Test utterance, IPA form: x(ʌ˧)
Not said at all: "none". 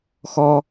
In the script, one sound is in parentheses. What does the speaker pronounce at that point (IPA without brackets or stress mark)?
ɔ˧